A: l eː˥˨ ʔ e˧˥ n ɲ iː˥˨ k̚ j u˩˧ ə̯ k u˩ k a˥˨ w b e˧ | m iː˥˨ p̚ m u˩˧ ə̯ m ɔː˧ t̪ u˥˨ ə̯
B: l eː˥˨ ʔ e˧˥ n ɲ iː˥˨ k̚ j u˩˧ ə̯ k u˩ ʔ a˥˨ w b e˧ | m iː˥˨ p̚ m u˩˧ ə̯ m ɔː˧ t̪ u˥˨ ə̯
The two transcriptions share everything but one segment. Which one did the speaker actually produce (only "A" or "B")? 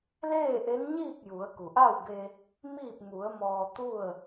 B